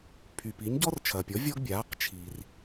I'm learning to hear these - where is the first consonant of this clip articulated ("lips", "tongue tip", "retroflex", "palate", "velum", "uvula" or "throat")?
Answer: lips